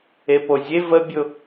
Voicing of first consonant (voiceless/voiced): voiceless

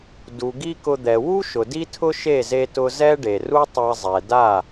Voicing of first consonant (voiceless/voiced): voiced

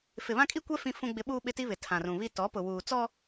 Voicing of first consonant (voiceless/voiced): voiceless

